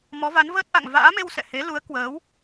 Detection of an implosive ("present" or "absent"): absent